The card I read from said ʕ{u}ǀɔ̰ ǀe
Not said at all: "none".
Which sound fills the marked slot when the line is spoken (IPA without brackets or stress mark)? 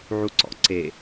u